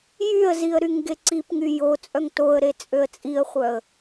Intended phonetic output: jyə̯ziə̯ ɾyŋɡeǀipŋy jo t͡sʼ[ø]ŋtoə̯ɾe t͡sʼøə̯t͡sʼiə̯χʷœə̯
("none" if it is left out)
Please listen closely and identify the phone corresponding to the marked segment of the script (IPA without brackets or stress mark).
œ